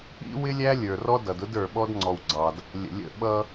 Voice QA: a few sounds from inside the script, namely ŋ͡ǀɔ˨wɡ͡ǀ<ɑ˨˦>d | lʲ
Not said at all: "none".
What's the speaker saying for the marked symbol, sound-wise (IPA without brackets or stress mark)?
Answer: ɑ˨